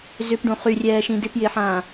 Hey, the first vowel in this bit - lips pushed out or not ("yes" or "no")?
yes